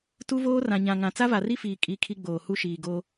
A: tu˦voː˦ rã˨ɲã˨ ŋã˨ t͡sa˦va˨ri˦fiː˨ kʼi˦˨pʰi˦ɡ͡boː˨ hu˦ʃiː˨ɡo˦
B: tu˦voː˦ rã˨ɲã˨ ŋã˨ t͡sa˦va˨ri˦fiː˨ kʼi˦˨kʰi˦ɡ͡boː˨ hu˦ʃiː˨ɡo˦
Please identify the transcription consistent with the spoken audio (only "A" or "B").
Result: B